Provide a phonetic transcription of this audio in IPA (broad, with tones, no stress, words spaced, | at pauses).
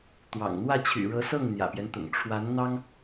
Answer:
t̪wɑ̰˨˩ŋn̪wä˥˩ t͡ɕʰy̰˨˩ɻɤ˧˥sɤ˥˩ŋ n̪jä̰˨˩pjɛ˦n t̪ʊ̰˨˩ŋ ʈ͡ʂʰwa˧˥nn̪ɑ˥ŋ